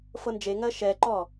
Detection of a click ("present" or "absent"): present